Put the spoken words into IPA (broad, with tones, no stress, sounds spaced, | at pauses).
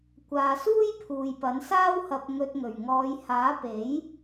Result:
kʷ aː˧ s uː˥ j pʰ uː˨ j p ɐ˨˥ n s aː˥ w h ɐ˧ p̚ ŋ ɵ˧ t̚ ŋ ɵ˨˩ ɥ ŋ ɔː˨˧ j h aː˨˥ p e˨˥ j